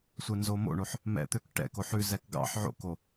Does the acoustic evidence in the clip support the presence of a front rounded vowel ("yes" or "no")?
yes